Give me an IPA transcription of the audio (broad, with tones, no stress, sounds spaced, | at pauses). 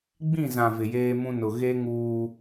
ɡ͡b ĩ˦˨ z ã˨ v ɪ˨ j eː˦ m ũ˦ n ʊ˨ ɣ e˦ ŋ uː˦